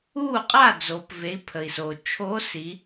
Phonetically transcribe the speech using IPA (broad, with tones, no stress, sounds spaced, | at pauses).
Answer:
uː˥˩ qʼ a˥˩ d͡z oː˩˧ p v e˩˧˩ i̯ pʰ ə˩ i̯ s oː˩ t͡ʃʰ oː˨˥ s i˩˧